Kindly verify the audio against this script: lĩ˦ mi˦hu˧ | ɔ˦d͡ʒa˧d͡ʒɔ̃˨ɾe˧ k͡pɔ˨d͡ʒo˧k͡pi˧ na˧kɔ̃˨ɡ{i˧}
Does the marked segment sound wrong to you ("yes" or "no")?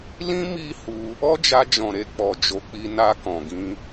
yes